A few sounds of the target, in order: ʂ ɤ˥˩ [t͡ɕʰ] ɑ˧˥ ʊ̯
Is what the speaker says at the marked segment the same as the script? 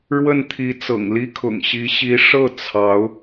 no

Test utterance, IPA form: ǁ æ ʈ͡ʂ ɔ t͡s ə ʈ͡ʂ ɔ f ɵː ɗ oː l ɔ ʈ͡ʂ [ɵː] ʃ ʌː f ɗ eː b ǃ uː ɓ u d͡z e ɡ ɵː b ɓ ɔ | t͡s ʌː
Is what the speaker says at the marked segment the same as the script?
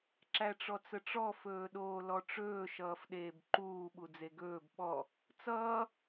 yes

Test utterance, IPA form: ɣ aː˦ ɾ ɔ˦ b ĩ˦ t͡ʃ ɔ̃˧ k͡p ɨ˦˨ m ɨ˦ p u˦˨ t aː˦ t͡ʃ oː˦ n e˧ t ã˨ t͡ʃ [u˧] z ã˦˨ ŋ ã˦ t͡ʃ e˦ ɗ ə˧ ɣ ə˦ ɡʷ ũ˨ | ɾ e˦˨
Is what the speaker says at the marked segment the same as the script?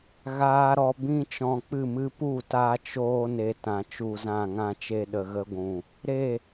yes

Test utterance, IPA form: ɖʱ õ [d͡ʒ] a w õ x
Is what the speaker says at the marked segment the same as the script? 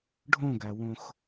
no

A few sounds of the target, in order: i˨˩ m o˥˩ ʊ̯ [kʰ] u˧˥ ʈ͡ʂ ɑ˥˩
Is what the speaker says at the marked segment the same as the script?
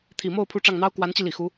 no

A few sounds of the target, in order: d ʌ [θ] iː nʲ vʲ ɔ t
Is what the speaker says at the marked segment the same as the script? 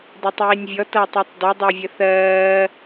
no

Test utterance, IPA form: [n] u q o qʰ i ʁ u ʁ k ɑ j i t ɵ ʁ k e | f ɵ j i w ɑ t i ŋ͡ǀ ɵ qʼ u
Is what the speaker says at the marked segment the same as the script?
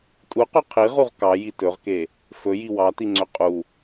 no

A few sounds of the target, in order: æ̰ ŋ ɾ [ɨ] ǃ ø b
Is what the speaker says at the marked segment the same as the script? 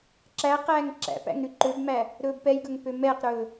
no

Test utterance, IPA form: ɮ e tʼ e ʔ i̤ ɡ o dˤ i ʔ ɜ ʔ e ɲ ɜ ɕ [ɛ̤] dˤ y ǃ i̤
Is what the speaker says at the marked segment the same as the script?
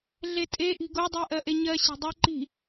no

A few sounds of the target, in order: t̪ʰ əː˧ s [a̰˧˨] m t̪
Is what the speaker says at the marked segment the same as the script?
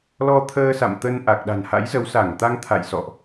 yes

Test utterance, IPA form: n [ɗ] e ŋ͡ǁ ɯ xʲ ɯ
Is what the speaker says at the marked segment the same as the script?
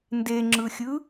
no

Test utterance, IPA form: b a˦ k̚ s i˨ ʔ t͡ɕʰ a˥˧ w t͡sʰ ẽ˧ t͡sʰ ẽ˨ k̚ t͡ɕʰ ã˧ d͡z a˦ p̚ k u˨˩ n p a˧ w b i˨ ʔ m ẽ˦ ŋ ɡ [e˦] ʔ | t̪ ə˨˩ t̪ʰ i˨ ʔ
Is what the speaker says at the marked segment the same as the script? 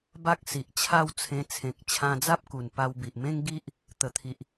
no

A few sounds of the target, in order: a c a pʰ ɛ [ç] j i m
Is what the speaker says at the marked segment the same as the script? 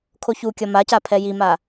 no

